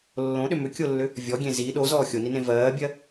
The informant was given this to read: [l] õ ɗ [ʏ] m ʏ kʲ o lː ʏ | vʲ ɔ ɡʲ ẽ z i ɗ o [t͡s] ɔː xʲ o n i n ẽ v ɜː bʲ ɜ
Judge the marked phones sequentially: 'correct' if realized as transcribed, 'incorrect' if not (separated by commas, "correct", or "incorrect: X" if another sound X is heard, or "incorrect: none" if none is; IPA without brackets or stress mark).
incorrect: lː, correct, incorrect: z